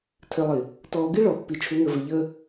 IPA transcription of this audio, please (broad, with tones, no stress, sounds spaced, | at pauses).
tʰ ɘ˨ lˠ i˨ | t ɔː˨ ɡ i˦ ɭ ɔ˨ pː i˨ t͡ʃʰ u˨˦ ŋ ə˨ v ɘ˨ ʎ əː˦